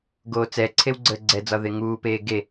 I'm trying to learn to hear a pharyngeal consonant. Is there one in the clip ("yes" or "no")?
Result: no